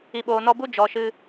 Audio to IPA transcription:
i˨ɓoː˨nɔ˧bu˦ d͡ʒɔ˨ʃɨ˧

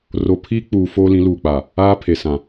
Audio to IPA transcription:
ro˦ pʰiː˦k͡puː˨ foː˦lĩ˨˦luː˨k͡paː˨ | aː˦pʰe˨ sã˨

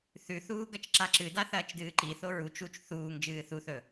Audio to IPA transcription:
θʉθuː ɡɐt͡ʃǁaǁɨda θɐːt͡ʃdɨːǃiθo ɹut͡ʃ ut͡ʃ θuːŋ d͡ʒɨːθuθɵ

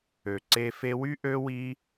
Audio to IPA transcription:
ø˨ǀe˧ fe˧wy˦ ʔø˦ wi˦

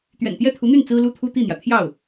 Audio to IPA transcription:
t̪ɥɛ̰˨˩nt̪jɛ˥˩t̪ʰu˧˥n̪y˥˩n t͡sɹ̩˥lu˥t̪ʰu˥ t̪i˥˩n̪jä˩ t̪ʰjɑ˥˩ʊ̯

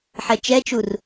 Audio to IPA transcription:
ħɛt͡ʃɛt͡ʃur

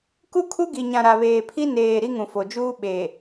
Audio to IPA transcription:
ku˦kʰu˦ɡi˨ ɲã˨ɾa˨βeː˨pʰi˦ neː˨ ɾi˦ŋũ˨fo˨d͡ʒuː˦ ɓe˨

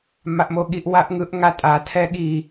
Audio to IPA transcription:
maʔmoɠiʔ waʔŋɯʔ ŋatʼa tʰɛɠi

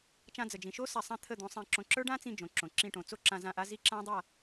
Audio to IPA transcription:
t͡ʃã˧d͡zə˨d͡ʒĩ˨ʃo˦ sa˧sˤã˦t̪ʰə˦˨ d̪õ˨˦sˤĩ˧ǁõ˧ ǁə˞˦ɖã˦t͡sĩ˧ d͡ʒõ˨ǁõ˨ǁĩ˧ʈõ˨ t͡so˦ǁã˧ zã˦˨ʔa˦zi˦ ǁã˦ dˤa˦˨

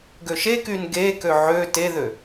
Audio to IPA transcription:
ɡøʃekyn ɡekø ʕø teðø

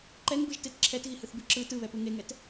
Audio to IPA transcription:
ǃɛŋbɯʒtet ǁʰɛtɣihɯθbɯ ǁɯ tɯβɛpɯ ŋeŋɛt

